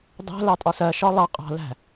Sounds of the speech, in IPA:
dˤæ̤ lɑtʼɒsɜʃɒ lˠɑ qʼɑ̤læ̤

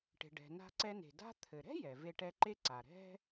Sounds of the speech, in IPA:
ʈe̤˩ɖɛ̤˩na̤˧ǀɛ˧ ne̤˩da̤˥ t̪ʰɘ˩ɾɛ̤˥ jɛ˩ ve˧ʈɛ˧ǃe˥ǀa˩ ɾɛ̤˥

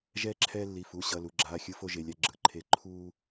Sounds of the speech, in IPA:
ʒɛː˧ǁʰɛː˧ lːi˩˧˩fu˩˧˩ ɕʌ˩˧˩ lu˩˧˩ɡ͡ǁaː˩˧˩xʲɯ˧fo˧ ʒe˩˧˩lʲa˧ ɡ͡ǁɯ˩˧˩ǃʰe˧ ǃʰuː˧

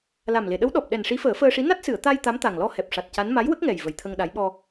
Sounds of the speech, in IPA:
la˨˩mle˨˩˨ɗə˧˥w ɗɔ˨˩p̚ɗɛ˨˩n ʂi˧˥fəː˨˩˦fəː˧ʂi˧˥ na˦˥t̚sɨ˨˩˨ə̯ t̪a˧j t̪a˧˥mt̪a˨˩ŋlɔ˧ hɛ˨˩p̚ʂa˨˩t̚ca˧˥n ma˧˥jwə˦˥k̚ŋɛ˨˩j və˨˩jt̪ʰə˧ŋɗa˧˥j ɓɔ˧

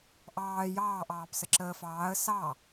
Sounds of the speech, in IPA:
ʔɑː jɑː ʔɑːpsəǁəːfɑːə̯ sɑ

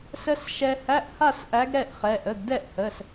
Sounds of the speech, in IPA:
sə˧s ʃɛ˧hæ˧˥˧ʔha˥˨s ʔæ˧˥ɡɾɛ˥˨ʔχɛ˩˧˩ʔ ə˩˧˩ɡdɛ˥˨ʔhə˩˧˩s

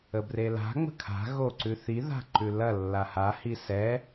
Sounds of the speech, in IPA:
əbrela̤ ŋ͡mə̤kʰa̤ ɣoǀʉθi ða̤ǃʉlɐ lːaha hisɛ

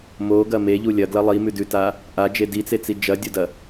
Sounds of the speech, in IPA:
moɡɐ meʎu lʲɐ ɡlɐlˠimʉ dʉta | ʔad͡ʒe dit͡set͡si d͡ʒɐdʲodɐ

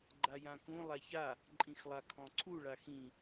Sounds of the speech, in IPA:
ɡ͡ǃajãkũ lˠaça | ǃʼĩxlˠakʰɔ̃ǀʰu ɭaxĩ

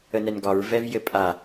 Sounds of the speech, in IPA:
ənɛnɡɒɹ vɛvjɘpʼa

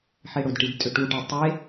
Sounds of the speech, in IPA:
ħeɽʊdʈid tʼʏʈuʈɛ tˤe

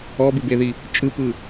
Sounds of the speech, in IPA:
ɔbɯbeði | t͡ʃʼɯpɯ

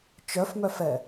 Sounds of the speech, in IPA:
t͡ʃœfmœfɛ

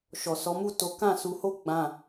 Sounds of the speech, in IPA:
ʃɔ˨sɔ˨˦mu˦˨to˨˦ kã˦˨su˧ho˦ ɡ͡bã˦˨

